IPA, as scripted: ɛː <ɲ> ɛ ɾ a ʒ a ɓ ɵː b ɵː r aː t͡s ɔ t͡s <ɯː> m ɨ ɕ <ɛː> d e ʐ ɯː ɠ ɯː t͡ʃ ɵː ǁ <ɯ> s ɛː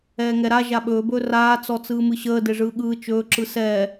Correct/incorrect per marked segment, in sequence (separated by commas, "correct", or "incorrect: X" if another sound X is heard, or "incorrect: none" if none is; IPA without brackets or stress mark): incorrect: ŋ, correct, incorrect: əː, correct